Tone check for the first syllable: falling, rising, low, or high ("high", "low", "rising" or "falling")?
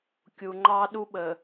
low